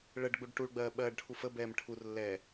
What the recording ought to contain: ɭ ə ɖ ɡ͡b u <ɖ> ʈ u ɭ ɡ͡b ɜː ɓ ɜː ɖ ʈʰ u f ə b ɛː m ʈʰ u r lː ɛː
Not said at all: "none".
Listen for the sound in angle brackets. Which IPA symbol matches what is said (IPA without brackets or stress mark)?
ɖ